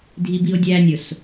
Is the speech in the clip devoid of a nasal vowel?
yes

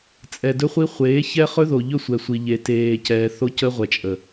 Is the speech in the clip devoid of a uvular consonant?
no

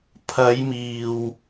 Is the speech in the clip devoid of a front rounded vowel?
yes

